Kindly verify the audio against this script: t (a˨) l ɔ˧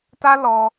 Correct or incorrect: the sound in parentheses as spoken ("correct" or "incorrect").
incorrect